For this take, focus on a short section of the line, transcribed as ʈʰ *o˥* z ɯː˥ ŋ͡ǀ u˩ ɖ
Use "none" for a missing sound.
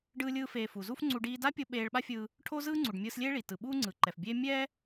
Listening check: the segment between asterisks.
o˥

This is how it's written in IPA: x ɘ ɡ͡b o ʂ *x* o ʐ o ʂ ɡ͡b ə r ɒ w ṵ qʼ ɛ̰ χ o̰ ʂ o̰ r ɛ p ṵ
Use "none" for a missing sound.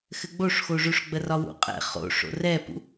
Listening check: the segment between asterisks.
x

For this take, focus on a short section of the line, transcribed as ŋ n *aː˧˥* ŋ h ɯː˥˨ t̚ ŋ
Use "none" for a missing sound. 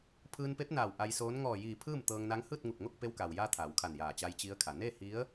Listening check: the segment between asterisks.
a˧˥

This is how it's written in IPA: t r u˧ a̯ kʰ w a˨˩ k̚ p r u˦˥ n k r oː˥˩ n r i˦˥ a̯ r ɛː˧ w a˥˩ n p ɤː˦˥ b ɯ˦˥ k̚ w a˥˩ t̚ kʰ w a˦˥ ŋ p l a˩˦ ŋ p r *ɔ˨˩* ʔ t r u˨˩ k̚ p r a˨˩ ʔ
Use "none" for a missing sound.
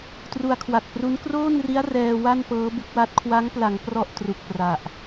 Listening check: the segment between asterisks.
ɔ˥˩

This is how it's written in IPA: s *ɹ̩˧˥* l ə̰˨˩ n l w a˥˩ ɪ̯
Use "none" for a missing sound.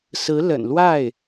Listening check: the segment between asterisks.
ɹ̩˧˥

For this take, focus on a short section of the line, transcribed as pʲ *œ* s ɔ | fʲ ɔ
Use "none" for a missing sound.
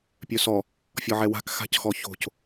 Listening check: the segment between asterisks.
œ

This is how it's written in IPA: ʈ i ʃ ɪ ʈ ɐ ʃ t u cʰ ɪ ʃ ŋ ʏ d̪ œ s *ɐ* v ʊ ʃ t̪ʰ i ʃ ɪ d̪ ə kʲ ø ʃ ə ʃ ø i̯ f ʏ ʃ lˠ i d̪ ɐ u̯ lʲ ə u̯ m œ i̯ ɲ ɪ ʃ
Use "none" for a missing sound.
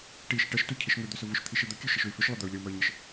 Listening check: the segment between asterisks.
ə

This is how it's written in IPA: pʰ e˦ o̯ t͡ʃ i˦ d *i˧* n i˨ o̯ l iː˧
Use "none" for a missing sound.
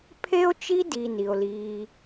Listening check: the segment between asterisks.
i˨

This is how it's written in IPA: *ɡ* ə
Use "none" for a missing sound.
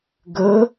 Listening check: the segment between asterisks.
ɡ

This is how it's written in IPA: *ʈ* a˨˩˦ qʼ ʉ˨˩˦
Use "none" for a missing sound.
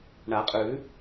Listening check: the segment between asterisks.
ɳ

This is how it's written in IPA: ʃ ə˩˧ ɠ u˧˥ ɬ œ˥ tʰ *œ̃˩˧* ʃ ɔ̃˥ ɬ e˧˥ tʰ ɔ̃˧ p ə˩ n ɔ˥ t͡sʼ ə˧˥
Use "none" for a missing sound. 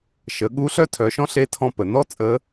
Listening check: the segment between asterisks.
œ˩˧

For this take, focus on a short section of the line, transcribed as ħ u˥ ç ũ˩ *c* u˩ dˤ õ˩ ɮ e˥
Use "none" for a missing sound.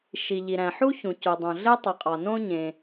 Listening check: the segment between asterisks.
c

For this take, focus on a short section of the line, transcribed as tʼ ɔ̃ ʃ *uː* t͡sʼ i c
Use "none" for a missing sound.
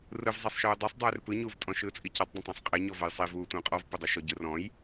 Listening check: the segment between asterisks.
ɯː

